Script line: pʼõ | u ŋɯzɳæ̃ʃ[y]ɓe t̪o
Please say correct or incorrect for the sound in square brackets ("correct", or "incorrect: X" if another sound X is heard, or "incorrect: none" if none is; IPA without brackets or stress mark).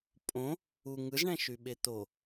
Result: correct